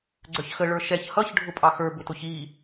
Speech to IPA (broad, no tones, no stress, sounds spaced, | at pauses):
ɡ͡ǀ ə˞ ç x ə ɭ ə˞ ʃ ɛ ç h ʌ ç ɖʱ ʊ pʼ ɑ x ə˞ b ʊ t ʊ ç i